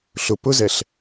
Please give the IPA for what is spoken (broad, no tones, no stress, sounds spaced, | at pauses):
ɬ ʊ p ʊ z ɛ ɬ